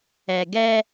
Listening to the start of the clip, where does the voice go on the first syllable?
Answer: low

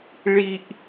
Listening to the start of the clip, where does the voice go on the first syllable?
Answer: high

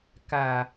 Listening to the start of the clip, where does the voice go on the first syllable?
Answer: low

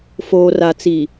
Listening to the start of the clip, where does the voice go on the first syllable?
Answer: low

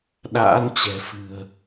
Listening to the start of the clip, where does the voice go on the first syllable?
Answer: rising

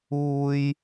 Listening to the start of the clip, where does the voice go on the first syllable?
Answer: high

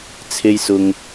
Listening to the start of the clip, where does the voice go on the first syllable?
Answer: high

